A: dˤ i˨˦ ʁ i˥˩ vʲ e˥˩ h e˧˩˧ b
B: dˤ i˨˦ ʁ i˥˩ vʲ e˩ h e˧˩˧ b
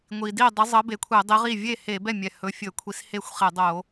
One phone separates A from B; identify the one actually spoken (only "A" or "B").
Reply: A